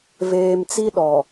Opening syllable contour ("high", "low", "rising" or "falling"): low